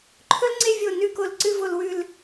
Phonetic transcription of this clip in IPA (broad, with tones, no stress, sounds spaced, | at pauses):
ǃʰ ɵ˥ l ŋ͡ǀ e˥˧ vʲ o˧˩ n ʉ˥˧ k o˧˩ l ǀ ɨ˥˧ v o˧ l w ʉ˥˧ l